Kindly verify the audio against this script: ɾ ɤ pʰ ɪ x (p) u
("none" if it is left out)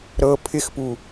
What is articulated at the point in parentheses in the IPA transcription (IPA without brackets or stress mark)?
p